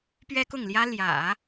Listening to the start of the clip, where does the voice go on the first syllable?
high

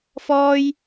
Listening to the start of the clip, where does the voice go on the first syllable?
high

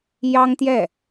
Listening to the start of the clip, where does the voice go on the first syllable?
high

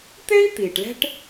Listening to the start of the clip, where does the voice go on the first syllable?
high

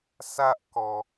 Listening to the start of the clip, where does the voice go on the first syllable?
high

